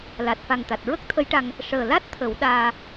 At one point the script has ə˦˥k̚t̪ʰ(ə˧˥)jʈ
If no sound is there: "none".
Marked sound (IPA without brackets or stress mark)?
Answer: ə˧˥